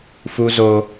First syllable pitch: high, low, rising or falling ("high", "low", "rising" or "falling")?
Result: high